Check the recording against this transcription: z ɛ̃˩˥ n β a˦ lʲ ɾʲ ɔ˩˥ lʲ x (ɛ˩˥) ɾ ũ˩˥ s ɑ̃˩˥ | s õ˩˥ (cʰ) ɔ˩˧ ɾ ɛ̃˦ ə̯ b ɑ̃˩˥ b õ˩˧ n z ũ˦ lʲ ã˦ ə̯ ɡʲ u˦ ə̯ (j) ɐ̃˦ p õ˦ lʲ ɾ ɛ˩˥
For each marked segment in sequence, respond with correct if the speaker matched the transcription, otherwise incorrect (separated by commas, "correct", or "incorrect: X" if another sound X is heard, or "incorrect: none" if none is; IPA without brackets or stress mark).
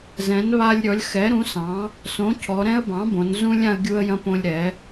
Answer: correct, correct, correct